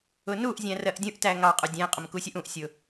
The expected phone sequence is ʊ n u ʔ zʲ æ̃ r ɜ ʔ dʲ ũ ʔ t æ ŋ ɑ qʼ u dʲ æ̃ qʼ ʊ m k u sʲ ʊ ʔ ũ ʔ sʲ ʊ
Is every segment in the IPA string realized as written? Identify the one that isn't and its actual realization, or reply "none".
none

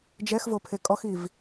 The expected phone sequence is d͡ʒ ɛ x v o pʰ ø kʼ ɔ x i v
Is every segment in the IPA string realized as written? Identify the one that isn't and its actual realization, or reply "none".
ø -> e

